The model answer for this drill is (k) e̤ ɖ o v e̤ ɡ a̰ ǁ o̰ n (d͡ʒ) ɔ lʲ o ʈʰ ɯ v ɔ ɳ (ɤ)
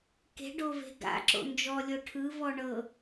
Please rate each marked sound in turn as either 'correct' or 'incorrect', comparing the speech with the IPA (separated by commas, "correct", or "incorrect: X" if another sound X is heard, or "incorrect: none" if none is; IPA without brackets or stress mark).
correct, correct, correct